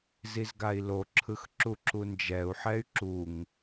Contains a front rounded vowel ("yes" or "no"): yes